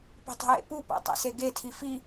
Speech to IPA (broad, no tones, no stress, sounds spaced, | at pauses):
p i̤ tˤ i̤ j ḛ p u p æ̰ tˤ ḛ s e ɡ e tʰ i f i